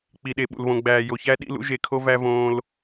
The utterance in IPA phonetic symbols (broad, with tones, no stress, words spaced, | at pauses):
k͡pi˨ɗe˨ɓṵ˨l βõ˨ ɡ͡bæː˨jo˨çæ˦ ɗḭ˧ lṵ˧ʒe˨kʰo˧væ˧ võː˦l